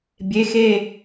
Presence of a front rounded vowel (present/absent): absent